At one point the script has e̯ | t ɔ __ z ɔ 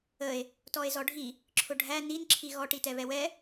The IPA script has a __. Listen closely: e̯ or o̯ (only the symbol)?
e̯